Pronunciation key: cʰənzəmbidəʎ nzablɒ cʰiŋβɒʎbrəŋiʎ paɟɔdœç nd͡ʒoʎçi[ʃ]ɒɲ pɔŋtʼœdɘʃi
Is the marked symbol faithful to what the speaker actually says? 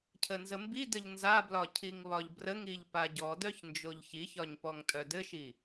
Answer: no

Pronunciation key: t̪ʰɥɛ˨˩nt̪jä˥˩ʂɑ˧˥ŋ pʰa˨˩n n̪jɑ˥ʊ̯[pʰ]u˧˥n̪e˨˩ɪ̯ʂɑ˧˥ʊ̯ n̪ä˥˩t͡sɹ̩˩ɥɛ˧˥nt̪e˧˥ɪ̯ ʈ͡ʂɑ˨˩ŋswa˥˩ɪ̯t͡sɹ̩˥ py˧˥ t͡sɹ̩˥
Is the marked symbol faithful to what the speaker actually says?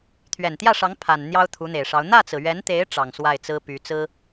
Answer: no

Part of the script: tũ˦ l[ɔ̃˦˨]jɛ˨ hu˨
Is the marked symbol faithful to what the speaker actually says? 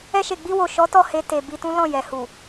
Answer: yes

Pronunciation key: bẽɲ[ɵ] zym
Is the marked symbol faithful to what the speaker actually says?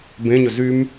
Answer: yes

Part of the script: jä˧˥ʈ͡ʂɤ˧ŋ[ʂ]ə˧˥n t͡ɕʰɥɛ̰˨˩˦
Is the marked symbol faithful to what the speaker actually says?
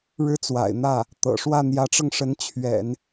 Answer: yes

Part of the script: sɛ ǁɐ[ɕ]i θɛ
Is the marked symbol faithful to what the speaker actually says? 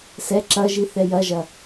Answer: no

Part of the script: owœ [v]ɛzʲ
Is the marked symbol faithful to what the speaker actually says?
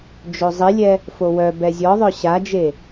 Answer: no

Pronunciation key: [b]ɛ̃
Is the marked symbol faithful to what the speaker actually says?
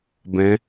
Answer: yes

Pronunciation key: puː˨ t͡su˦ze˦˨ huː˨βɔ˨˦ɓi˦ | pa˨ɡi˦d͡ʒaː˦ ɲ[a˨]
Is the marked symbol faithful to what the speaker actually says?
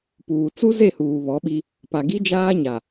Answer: yes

